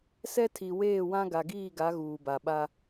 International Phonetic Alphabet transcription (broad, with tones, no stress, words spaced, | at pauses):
sɛ˦tʰi˨weː˦˨wã˦ ɡa˨ɡiː˦˨ɡa˨˦ ɣuː˨ba˨ɓa˦